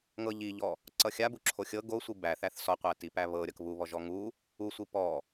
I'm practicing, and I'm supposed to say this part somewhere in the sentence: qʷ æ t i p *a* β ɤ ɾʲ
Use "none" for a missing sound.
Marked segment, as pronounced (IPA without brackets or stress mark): æ